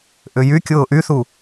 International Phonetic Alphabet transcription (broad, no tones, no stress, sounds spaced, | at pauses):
ʔ ʏ j y kʲ ʊː ʔ y θ u